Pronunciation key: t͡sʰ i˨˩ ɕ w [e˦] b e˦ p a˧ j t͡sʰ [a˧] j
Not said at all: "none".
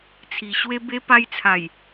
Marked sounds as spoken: e˦, a˨˩

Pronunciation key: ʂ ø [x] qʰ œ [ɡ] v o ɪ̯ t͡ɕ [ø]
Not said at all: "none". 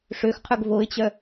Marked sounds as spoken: x, ɡ, œ

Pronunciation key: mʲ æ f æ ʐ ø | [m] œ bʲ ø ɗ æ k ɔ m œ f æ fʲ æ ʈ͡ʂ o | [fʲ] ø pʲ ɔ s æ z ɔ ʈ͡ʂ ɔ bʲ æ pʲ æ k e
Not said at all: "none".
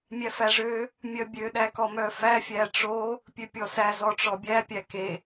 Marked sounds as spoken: mʲ, pʲ

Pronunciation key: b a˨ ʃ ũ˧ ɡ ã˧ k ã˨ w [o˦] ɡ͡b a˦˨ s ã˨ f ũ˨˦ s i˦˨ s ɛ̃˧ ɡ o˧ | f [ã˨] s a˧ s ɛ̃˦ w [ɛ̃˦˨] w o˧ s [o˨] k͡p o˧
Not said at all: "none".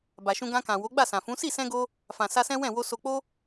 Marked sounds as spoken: o˨˦, ã˨, ɛ̃˦˨, o˨

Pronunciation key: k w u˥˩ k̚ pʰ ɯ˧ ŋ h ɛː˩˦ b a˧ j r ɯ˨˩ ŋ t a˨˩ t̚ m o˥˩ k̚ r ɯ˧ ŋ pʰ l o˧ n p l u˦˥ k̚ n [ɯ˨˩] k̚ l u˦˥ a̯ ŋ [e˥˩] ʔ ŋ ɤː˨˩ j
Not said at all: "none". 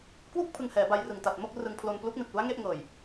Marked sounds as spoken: ɯ˨˩, e˥˩

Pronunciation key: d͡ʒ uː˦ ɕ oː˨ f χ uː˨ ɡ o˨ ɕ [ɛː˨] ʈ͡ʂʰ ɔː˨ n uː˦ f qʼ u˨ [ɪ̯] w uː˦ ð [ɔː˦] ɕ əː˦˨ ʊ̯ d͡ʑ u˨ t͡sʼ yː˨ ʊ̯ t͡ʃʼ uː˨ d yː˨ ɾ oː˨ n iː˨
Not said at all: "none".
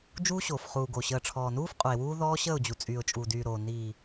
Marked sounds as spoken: əː˨, ɪ̯, ɔː˦

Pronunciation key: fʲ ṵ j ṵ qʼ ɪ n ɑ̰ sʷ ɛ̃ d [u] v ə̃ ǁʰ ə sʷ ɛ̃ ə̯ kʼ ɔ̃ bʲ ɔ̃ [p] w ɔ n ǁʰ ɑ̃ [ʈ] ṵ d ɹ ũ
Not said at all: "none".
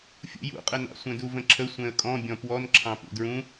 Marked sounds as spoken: u, p, p

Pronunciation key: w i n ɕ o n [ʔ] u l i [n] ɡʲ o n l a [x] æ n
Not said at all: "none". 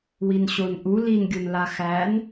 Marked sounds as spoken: ʔ, n, x

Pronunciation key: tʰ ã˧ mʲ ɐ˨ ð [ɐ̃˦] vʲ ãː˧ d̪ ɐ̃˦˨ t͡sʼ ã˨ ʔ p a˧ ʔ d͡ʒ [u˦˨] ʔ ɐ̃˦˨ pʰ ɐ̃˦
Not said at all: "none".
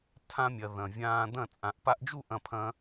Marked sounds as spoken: ɐ̃˨, u˦˨

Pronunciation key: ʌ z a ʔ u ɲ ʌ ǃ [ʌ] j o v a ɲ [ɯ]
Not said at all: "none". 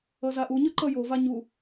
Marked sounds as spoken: ʌ, u

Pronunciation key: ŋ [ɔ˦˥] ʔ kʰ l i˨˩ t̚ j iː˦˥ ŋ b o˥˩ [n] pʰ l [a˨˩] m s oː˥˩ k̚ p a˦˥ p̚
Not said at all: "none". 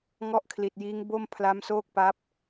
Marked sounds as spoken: ɔ˦˥, m, a˦˥

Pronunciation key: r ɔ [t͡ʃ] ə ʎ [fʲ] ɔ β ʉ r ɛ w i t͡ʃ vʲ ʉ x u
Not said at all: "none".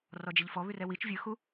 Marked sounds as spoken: d͡ʒ, f

